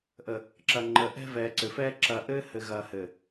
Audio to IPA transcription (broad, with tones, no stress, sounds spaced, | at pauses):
ʔ ə˨ | ǁ ɐ˨ ŋ͡ǃ ə˨˦ ʔ ɛ̤˦ v ɛː˨ ǀ ɘ˨ f ɛː˦ ǁ ɐ˨ ʔ ɘː˦ h ɘ˨ ɣ ɐː˨ h ɘː˨